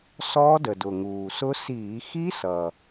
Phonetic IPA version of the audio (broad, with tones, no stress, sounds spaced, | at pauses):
s ɔː˦˥ d ə˨˩ d ʊ˨˩ ŋ uː˨˩ s ʊ˦˥ s iː˧˩˧ x i˦˥ s ʌ˨˩